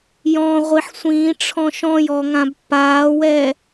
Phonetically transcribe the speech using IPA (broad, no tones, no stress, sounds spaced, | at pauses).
j ɔ̃ ʁʷ i ħ sʷ ĩː ʈ͡ʂʰ ɔ̃ ʃ ɔ̃ j ɔ ŋ ã b pː aː w ɛ